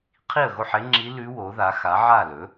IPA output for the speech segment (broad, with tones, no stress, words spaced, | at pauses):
qʰi˥˩ə̯ɣo˥˩ħe˧˥ŋ͡ǁi˧˥ lʉ˧˥ wo˩˥ða˩˥ xa˩˥ʕa˥˩lɵ˩˥